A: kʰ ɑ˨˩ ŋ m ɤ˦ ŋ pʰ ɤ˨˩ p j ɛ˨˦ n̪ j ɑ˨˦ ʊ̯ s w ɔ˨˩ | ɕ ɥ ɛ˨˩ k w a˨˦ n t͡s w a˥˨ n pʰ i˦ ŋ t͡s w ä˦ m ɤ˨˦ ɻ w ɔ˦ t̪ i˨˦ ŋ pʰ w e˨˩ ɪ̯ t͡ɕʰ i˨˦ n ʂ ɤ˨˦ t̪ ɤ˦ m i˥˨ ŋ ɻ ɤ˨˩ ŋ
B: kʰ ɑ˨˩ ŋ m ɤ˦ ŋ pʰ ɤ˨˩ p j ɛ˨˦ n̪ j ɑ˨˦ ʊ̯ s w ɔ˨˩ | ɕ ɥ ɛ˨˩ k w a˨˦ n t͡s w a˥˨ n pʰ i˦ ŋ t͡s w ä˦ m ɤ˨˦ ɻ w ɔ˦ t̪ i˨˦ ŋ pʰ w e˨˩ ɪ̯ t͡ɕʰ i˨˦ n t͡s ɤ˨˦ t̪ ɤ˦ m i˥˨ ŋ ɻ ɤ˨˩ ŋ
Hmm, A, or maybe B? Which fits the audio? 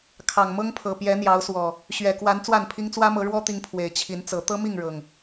B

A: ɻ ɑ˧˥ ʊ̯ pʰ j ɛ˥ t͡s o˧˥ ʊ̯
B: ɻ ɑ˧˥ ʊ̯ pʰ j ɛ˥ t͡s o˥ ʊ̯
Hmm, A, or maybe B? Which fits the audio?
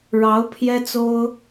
B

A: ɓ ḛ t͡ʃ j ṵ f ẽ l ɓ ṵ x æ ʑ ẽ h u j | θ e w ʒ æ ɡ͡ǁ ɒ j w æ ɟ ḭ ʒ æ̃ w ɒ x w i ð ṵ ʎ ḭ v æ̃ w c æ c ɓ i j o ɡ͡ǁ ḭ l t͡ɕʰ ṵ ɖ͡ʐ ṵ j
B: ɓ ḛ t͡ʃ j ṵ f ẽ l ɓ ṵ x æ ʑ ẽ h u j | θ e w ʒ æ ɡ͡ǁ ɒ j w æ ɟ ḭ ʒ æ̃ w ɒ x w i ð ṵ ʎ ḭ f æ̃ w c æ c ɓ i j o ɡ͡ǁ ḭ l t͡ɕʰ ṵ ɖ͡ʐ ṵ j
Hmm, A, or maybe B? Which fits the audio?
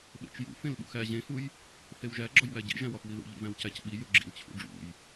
A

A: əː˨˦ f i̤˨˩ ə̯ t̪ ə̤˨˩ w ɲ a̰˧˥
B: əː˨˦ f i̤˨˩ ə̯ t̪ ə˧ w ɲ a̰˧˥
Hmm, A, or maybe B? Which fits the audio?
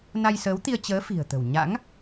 A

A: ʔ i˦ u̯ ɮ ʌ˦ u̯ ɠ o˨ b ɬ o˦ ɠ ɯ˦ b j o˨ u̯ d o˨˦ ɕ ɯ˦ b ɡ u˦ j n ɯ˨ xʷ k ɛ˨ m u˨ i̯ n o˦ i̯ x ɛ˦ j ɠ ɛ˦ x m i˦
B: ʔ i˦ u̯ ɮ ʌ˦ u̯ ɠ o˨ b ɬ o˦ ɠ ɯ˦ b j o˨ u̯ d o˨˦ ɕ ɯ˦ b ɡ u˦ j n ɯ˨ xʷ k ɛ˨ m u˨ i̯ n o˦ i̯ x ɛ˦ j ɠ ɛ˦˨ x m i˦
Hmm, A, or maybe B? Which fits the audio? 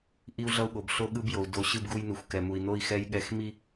B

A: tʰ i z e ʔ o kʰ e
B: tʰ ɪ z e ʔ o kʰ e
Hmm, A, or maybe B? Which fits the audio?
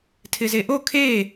B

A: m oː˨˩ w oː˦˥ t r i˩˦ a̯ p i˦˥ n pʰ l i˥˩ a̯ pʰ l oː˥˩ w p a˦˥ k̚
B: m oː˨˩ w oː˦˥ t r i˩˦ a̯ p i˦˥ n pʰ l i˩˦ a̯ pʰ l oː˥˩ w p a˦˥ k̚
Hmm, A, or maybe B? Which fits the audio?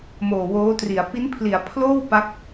B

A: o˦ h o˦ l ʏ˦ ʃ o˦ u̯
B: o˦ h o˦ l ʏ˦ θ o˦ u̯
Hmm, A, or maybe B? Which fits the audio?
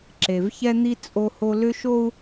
A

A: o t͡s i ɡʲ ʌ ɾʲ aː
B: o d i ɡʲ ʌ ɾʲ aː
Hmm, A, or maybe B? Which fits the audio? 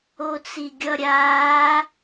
A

